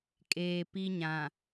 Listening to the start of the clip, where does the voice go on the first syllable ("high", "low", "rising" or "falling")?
low